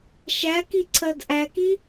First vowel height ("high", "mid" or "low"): low